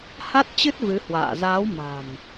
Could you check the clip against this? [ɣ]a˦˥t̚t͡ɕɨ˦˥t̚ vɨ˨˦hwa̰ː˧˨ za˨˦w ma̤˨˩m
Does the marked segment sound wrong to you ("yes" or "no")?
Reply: yes